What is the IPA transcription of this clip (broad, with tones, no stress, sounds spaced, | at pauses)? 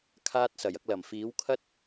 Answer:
kʰ aː˧ t̚ s ɐ˨˩ j ɐ˧ k̚ l ɐ˨˩ m f iː˨˥ w kʰ ɐ˥ t̚